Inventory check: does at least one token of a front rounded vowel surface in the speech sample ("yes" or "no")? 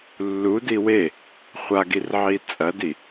no